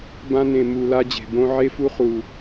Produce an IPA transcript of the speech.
b ã˧ n ẽ˨˩ m u˨˩ l a˧ d͡ʑ e̤˨˩ b õ˧ ʕ e˧ f u˧ χ u˨˩

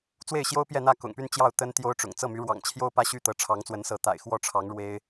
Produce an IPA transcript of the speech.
t͡s w e˥˩ ɪ̯ ɕ j o˥ ʊ̯ p j ɛ˥˧ n̪ ä˥˩ k ʊ̰˨˩ ŋ p y˥˧ n t͡ɕ j ɑ˥˩ ʊ̯ t̪ ə˥ n t̪ j o˥ ʊ̯ ʈ͡ʂ ʊ̰˨˩ ŋ t͡s ɤ˥˩ m y˧˥ ɻ w ɑ̰˨˩ ŋ t͡ɕʰ j o˥ ʊ̯ p ä˥ ɕ y˥˩ t̪ ɤ˧˥ ʈ͡ʂʰ ɑ˧˥ ŋ t͡s w ə˧˥ n s ɤ˧˥ t̪ a̰˨˩ ɪ̯ x w ɔ˥˩ ʈ͡ʂʰ ɑ˧˥ ŋ ɻ w e˥ ɪ̯

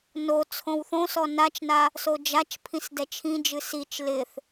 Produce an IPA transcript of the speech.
n o t͡sʰ õ w θ õ s ɔ n a t͡ʃ n a | s o d͡ʒ a t͡ʃ pʰ ĩ s d ɛ t͡ʃʰ ĩ d͡ʒ ɨ s i t͡ʃ l ɪ θ

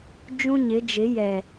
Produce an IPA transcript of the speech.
d͡ʒ ũ˦ ɲ ɪ˨˦ d͡ʒ ɪ˨˦ j ɛ˨

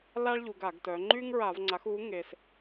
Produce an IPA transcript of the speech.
l a˥ ɭ ʎ u˩˧ ɡ a˧˩˧ ɡ t œ˩˧ ŋ͡ǃ y˥ ŋ ɹ a˧˩˧ v ŋ͡ǀ a˩˥ x u˩˥ ŋ e˩ s

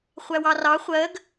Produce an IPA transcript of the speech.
χʷ æ w ɑ r ɑ χʷ ɜ ɡ

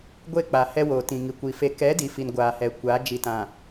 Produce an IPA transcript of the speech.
ɡʷ e˦˨ k͡p a˨ h ɛ˦ w oː˨ t ĩ˨ ŋ i˨ kʷ i˨ f e˨ k ɛ˨˦ d i˨ f i˨ n ɡʷ aː˨ h ɛ˨ kʷ aː˨˦ d͡ʒ i˨ t ã˨

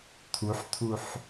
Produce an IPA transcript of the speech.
t̪ʰ u ħ t̪ʰ u ħ

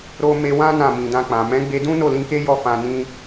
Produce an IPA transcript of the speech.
ɾ o˦ m e˧ w ã˦ n ã˦˨ m ĩ˨ d ã˧ k͡p ã˨ m ɛ̃˨˦ ɡ͡b e˧ d ũ˦ n o˦˨ l ĩ˧ k e˦ j ɔ˦ f ã˧ n ĩ˦

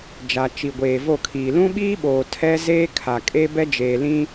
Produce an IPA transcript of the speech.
d͡ʒ a˨ t͡ʃ i˨ ɡʷ eː˨ v o˦˨ kʰ iː˨ l ũ˦ ɓ iː˦ ɓ oː˨ tʰ ɛ˦ z eː˦ kʰ a˨ kʼ e˦ b ɛ˦ d͡ʒ eː˨ l ĩ˦

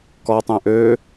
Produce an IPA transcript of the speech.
k ɔ tˤ ɛ̃ ʔ ø

